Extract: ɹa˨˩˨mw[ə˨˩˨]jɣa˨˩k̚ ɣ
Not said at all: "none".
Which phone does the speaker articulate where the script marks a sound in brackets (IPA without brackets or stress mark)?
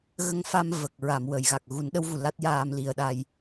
ə˨˩˨